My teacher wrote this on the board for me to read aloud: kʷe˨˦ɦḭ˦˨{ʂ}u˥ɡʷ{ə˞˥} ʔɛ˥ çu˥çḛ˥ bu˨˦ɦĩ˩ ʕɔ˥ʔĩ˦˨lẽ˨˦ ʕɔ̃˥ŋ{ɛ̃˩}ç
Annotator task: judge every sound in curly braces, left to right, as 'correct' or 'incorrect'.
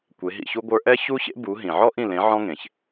incorrect, correct, incorrect

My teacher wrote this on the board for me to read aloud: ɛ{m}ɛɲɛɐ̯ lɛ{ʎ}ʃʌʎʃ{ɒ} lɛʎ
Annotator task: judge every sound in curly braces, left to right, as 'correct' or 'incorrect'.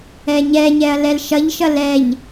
incorrect, incorrect, incorrect

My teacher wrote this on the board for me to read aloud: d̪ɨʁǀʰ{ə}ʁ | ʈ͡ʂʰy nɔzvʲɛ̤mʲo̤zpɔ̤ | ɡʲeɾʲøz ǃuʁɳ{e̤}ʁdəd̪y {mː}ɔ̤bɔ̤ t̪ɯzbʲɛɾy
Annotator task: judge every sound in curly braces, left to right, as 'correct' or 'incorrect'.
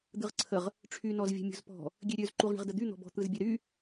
correct, incorrect, incorrect

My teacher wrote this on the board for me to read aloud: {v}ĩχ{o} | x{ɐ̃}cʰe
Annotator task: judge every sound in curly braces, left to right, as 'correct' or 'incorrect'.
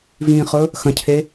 correct, incorrect, correct

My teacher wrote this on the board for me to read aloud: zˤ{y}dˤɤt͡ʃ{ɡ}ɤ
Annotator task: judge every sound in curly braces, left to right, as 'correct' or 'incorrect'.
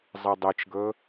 incorrect, correct

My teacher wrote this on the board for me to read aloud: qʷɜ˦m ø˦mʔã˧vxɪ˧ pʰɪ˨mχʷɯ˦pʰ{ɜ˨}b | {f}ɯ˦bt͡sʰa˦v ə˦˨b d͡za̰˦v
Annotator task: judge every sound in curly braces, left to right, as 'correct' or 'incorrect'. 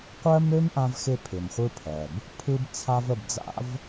correct, incorrect

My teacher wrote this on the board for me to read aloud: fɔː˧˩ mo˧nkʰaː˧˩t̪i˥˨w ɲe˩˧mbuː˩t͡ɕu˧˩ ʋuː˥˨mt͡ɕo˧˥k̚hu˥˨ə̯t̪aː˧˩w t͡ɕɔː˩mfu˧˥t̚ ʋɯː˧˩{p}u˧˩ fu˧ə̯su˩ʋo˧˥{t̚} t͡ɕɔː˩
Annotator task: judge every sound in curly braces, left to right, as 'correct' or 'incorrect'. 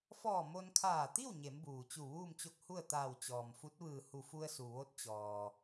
incorrect, correct

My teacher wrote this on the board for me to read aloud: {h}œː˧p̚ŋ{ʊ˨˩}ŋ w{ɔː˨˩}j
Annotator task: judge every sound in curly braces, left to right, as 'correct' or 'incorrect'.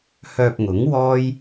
correct, incorrect, incorrect

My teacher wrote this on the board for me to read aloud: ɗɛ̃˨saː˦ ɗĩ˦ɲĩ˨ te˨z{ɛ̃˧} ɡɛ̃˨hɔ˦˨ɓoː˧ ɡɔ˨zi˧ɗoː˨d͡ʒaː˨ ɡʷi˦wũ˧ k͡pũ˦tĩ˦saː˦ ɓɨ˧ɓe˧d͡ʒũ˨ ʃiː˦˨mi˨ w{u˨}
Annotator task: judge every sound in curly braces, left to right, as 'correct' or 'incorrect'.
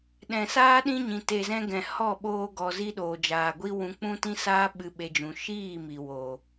correct, incorrect

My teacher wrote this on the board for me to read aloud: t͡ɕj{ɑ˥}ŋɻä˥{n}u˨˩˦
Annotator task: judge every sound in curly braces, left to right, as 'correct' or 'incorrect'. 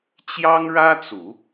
correct, incorrect

